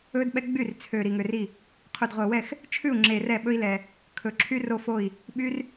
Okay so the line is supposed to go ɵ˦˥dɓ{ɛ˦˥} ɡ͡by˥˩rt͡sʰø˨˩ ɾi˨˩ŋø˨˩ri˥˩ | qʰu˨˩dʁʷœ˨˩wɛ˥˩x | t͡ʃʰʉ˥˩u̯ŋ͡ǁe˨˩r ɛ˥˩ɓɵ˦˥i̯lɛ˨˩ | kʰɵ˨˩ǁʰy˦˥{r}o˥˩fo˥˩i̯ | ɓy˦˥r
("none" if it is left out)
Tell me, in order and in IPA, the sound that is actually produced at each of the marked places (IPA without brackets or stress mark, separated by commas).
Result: ɛ˦˥, r